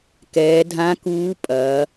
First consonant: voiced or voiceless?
voiceless